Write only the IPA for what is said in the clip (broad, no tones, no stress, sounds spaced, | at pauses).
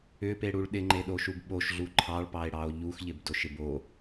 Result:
ʏ p e ɽ u ɭ ɗ ɪ ŋ͡ǃ e ɗ o ʃ u b ɓ o ʃ ɮ u ǃʰ ɑ ɭ p ɑ e̯ ɽ ɑ o̯ ʎ u x ʎ ɪ b d o ʃ ɪ b o